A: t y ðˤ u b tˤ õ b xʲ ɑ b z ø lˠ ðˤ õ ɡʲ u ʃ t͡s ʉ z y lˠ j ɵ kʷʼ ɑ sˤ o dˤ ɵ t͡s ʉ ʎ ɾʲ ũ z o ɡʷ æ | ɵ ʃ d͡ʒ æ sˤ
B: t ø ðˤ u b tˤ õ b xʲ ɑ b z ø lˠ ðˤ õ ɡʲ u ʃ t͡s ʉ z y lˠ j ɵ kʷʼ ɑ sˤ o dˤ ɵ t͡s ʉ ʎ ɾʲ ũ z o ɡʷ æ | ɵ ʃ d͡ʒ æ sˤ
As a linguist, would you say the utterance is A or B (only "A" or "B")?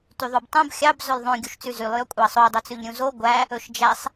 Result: A